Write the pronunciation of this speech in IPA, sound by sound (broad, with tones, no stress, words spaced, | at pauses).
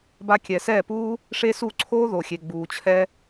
ba˧kʲɛ˨sɛː˦˨puː˦ | ʂe˦su˦˨ǀʰoː˦ ðo˨xʲe˨ ɡ͡buː˨t͡ɕʰɛ˧